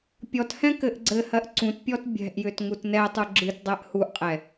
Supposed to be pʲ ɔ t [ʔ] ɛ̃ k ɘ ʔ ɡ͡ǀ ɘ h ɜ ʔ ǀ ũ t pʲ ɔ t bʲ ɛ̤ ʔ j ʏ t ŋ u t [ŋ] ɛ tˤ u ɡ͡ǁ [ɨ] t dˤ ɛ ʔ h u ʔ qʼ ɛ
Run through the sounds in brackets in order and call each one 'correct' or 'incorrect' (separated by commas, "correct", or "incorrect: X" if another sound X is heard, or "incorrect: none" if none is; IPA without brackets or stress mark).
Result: incorrect: h, incorrect: n, correct